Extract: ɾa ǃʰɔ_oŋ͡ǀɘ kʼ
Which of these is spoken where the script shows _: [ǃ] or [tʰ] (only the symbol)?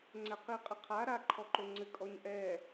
ǃ